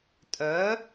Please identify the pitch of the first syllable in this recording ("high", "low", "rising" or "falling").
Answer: rising